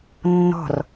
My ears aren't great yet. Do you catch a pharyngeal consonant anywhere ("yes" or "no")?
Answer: no